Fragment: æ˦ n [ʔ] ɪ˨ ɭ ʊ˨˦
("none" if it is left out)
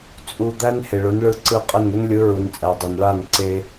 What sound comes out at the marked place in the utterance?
h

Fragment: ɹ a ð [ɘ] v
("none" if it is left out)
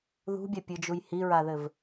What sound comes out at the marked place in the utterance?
ɘ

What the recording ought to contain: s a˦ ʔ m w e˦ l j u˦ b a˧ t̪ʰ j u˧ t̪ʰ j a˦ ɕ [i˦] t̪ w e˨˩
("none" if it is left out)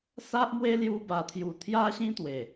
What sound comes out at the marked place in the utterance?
ĩ˦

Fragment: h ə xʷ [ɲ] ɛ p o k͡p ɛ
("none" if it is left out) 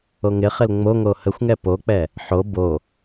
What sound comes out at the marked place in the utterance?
ŋ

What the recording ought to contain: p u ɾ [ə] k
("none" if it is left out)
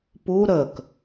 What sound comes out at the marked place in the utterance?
ə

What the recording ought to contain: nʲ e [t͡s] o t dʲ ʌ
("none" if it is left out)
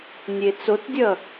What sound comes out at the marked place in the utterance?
t͡s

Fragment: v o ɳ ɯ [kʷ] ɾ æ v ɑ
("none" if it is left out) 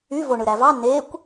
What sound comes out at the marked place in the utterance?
none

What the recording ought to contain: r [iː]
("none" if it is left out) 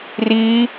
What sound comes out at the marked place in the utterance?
iː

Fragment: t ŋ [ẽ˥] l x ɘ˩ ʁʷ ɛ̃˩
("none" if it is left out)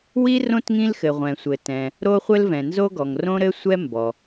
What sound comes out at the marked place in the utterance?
ĩ˥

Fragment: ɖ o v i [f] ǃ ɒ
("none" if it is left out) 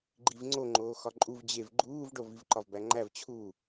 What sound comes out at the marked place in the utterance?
v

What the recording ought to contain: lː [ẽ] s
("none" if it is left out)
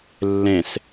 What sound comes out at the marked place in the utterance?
ẽ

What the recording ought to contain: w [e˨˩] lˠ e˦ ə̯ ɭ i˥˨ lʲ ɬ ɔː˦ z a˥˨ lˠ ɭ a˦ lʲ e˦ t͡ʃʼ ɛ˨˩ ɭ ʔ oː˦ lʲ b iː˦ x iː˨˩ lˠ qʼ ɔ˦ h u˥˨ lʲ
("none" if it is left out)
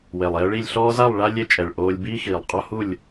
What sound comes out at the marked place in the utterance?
e˨˩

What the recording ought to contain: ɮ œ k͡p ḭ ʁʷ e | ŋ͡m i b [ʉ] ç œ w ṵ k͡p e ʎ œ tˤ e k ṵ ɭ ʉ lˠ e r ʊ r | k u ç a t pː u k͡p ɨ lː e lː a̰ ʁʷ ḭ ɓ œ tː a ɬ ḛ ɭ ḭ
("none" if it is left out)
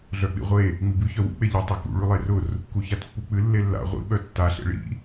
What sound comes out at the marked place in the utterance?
ʉ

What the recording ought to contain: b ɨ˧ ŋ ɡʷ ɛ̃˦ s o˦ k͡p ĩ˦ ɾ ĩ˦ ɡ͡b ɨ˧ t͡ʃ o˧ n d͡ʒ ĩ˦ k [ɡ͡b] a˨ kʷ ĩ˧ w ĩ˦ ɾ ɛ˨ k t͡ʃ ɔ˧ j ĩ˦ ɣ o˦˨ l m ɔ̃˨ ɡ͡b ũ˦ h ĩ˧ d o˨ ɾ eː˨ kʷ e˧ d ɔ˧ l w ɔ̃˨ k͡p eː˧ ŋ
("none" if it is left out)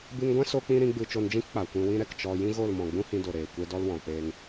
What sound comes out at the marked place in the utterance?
k͡p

